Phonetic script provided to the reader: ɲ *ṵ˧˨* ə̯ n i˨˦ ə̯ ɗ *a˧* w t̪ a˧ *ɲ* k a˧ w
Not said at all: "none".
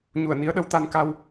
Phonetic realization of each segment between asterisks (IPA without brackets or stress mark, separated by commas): u˧˩, ə˧, n